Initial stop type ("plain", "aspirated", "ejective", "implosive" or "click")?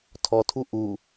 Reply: aspirated